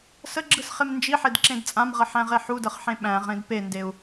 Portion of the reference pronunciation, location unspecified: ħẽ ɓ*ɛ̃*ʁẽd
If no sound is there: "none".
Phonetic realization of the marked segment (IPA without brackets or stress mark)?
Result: æ̃